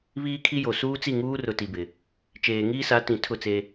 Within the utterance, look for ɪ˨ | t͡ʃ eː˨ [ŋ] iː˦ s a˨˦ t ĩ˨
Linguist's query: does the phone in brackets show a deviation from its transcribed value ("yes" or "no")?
no